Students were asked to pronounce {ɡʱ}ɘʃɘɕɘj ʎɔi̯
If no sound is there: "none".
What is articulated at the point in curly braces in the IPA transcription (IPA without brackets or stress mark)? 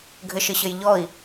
ɡʱ